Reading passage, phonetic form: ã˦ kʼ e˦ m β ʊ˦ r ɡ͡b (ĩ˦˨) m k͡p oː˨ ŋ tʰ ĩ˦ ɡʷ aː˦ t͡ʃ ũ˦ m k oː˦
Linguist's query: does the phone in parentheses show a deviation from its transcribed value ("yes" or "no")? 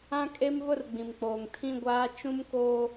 yes